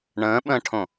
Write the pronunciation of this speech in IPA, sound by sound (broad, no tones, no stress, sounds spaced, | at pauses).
ɳ ə̃ː ɓ ə̃ː ʈʰ õ